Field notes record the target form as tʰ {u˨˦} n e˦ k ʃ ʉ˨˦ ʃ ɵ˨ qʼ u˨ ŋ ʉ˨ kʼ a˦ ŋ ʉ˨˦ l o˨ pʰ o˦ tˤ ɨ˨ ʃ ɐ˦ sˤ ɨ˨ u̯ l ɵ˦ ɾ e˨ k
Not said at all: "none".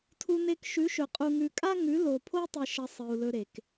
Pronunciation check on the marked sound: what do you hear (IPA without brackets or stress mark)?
u˦